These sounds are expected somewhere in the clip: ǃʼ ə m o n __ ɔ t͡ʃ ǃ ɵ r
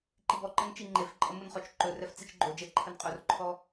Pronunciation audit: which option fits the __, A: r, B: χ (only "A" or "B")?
B